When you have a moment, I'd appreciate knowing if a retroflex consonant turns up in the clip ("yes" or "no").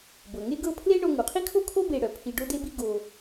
yes